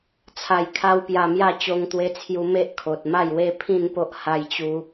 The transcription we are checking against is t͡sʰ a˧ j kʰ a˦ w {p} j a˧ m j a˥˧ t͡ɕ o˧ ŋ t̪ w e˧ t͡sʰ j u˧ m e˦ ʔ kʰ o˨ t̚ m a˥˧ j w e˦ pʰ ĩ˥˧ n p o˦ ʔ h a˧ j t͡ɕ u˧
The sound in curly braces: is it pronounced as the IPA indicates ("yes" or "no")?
yes